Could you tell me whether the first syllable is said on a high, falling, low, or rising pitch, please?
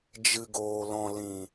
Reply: low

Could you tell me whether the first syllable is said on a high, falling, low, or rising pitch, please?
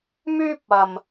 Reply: high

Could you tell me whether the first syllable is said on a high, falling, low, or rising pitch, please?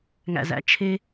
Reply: low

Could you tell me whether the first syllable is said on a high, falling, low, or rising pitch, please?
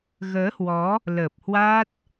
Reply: rising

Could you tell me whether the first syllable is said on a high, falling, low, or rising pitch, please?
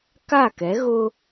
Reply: falling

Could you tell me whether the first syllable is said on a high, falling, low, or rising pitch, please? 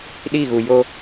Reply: falling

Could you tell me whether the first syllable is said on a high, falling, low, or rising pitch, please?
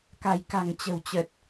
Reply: low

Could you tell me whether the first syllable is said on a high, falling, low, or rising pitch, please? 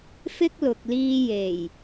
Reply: high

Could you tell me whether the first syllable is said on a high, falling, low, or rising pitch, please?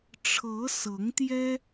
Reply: rising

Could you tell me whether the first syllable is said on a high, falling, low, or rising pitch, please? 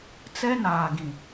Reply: high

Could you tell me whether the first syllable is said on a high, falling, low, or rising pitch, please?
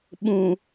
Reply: low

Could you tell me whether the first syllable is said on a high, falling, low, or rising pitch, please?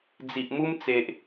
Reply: low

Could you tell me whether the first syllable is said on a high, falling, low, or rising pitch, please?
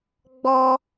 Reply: high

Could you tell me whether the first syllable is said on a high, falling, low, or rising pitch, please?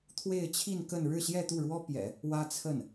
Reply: falling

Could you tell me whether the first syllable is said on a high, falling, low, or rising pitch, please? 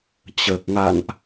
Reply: low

